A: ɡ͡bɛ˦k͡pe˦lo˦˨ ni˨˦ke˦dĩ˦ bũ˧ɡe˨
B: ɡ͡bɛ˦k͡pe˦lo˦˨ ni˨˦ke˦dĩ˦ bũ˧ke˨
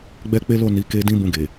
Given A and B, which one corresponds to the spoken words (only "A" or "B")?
A